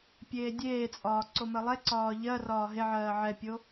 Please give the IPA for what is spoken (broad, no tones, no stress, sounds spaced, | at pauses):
pʲ eː dʲ eː t͡sʼ ɒː ǀ o m ɜ lˠ ɛ ǀ ɒː ʎ ɜ r ɒː ɦ e ʕ ɜː ʕ ɛ pʲ o